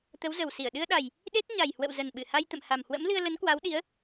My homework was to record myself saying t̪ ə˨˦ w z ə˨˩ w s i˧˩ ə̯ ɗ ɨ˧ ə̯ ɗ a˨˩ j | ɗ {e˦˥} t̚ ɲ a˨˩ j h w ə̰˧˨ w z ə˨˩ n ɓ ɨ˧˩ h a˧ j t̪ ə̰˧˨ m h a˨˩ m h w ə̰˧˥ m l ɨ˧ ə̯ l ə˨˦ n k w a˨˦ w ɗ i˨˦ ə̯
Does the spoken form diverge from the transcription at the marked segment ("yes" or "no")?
no